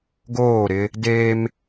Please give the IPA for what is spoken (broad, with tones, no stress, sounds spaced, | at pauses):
ɡ oː˦˨ ɾ ɪ˦ | d eː˦ m